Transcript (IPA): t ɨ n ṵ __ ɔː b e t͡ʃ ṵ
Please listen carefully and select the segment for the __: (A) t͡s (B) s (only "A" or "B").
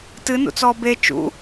A